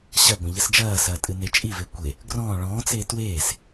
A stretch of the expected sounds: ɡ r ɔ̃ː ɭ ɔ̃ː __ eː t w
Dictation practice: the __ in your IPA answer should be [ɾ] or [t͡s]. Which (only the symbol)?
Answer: t͡s